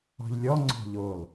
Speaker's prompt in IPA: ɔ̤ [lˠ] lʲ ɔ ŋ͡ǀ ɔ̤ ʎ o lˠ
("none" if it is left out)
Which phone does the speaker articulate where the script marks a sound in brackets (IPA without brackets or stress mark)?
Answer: ʎ